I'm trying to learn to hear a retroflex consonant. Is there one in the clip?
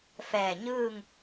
no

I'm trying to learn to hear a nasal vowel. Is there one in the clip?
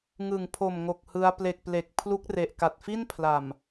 no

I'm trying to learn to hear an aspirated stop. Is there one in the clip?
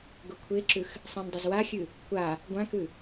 yes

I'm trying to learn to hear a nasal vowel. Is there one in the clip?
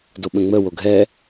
yes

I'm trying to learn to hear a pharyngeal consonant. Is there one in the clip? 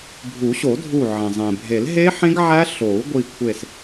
yes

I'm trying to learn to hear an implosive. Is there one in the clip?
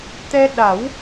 yes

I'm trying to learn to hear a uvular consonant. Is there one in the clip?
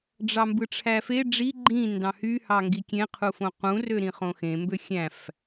yes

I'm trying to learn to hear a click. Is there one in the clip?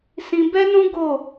no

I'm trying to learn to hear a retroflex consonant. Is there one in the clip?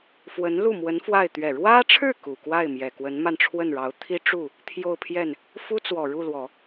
yes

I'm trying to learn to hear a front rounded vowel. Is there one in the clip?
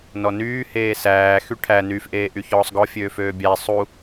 yes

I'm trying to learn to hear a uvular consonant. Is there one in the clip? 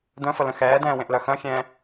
no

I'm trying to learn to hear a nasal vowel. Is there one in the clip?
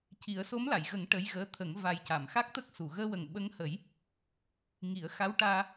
no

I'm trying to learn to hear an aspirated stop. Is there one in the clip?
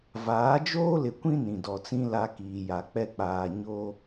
no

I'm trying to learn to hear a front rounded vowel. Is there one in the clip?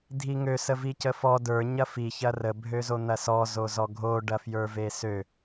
yes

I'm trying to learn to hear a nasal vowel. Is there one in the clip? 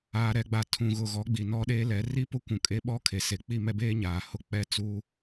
yes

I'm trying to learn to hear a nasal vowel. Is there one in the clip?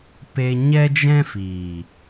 yes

